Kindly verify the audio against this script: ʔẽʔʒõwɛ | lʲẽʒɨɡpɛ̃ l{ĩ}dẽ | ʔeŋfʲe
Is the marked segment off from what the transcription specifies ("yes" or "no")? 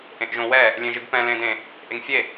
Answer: yes